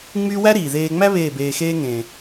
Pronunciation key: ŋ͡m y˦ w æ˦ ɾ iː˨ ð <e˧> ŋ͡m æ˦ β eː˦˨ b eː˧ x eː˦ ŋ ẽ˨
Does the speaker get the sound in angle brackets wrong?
yes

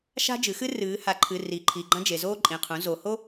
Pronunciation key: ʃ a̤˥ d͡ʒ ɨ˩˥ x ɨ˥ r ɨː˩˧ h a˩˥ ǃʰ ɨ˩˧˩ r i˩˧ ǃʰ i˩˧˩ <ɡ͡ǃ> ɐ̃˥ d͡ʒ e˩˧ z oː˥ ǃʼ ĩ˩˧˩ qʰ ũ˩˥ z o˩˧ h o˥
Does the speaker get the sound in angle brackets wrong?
no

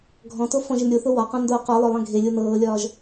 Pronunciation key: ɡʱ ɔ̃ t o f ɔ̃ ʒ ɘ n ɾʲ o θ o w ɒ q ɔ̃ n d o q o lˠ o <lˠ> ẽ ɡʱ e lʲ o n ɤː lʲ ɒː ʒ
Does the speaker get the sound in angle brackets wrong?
no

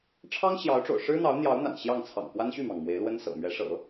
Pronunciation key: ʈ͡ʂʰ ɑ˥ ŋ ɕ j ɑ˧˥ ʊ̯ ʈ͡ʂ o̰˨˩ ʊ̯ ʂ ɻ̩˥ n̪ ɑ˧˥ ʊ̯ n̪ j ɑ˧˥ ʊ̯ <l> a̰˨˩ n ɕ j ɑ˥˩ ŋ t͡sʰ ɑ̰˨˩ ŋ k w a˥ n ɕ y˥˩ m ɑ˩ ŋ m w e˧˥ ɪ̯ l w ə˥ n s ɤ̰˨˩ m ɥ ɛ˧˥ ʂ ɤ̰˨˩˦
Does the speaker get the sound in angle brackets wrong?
yes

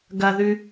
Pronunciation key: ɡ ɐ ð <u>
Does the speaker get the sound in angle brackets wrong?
yes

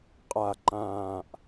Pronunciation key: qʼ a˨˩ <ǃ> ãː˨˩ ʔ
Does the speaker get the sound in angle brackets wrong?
no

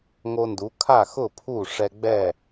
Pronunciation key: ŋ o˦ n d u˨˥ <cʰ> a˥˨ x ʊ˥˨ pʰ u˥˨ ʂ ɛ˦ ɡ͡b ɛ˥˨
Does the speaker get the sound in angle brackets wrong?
yes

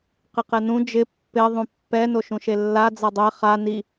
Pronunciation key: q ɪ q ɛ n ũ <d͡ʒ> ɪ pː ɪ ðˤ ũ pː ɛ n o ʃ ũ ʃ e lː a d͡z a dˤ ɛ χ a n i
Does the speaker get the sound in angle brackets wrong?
no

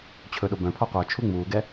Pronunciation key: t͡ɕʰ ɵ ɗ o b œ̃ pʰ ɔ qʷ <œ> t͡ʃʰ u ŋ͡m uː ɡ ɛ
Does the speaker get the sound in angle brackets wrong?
no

